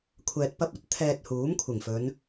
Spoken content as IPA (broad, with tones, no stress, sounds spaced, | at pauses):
kʷʰ ɛː˧ t̚ p ɐ˥ p̚ ɐ˥ t̚ t̪ʰ ɛː˧ t̚ h uː˨˥ m kʷʰ ɪ˨˩ ŋ f ɵ˨˧ n